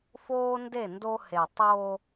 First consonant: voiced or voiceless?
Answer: voiceless